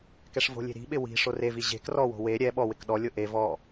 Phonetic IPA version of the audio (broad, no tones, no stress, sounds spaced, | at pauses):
k ɛ ʂ v o̤ lʲ e̤ ɾ i̤ ɓ ɪ w i̤ ʂ o r e v i ʑ e̤ k r ɔ w o̤ w e ɾʲ ɛ ɓ ɔ w ɪ k ɗ ɔ lʲ o ʔ e v ɔ